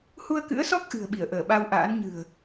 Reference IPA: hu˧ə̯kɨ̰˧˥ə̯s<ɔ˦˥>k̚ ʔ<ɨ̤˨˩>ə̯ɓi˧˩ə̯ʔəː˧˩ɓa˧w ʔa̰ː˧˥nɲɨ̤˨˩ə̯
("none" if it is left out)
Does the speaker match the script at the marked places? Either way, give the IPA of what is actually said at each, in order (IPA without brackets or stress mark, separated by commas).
ɔ˦˥, ɨ̤˨˩